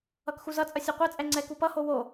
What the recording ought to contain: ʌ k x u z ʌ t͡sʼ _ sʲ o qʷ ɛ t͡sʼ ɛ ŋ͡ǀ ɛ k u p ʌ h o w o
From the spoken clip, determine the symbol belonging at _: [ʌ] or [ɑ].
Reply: ʌ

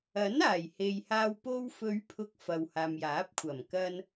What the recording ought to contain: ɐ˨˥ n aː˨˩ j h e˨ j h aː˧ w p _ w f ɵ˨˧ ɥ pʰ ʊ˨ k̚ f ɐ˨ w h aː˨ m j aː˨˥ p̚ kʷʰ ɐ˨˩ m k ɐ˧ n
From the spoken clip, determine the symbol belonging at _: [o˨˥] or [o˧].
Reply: o˧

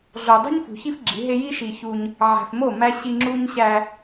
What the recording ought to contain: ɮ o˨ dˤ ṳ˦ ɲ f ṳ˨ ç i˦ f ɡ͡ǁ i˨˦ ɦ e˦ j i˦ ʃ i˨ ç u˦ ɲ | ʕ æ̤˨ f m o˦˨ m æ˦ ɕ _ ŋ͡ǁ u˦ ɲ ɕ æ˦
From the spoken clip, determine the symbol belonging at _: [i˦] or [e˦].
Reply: i˦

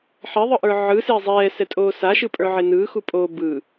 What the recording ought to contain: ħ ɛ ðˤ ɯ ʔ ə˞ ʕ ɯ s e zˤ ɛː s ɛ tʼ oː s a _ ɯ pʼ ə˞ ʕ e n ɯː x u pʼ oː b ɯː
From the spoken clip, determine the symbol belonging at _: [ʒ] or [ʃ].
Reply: ʃ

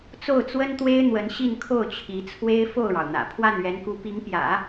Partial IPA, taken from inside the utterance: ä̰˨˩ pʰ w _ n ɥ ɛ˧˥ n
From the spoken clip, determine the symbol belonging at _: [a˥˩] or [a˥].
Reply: a˥˩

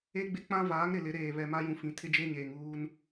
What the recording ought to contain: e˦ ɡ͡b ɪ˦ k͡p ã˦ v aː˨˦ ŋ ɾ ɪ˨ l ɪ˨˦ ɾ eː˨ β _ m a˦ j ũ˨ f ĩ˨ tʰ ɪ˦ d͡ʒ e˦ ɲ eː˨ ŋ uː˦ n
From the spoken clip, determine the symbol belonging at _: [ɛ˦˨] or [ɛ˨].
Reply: ɛ˨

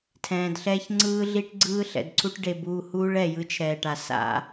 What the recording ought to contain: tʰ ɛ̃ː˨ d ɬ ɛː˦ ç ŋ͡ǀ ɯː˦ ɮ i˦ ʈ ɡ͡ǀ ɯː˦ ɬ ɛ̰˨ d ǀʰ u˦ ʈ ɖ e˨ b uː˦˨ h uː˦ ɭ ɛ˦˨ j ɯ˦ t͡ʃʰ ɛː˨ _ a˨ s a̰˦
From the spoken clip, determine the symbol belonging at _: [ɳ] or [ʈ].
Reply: ʈ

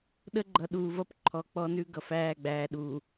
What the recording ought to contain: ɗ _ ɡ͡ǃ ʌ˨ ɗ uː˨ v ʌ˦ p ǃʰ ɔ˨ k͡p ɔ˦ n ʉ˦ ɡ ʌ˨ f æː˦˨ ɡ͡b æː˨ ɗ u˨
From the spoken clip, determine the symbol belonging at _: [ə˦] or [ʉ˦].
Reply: ə˦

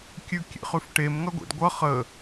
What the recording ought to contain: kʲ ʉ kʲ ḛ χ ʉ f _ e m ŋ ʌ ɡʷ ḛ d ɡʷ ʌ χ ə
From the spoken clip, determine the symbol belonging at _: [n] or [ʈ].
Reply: ʈ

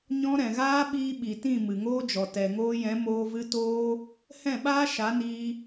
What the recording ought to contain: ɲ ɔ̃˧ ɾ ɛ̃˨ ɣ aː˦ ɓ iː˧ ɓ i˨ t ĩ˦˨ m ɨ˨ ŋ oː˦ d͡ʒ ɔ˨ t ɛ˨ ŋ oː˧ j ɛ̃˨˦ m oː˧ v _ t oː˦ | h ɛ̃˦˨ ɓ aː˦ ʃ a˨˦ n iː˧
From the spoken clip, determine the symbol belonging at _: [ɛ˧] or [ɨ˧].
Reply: ɨ˧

